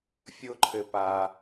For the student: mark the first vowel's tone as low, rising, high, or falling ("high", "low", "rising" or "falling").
high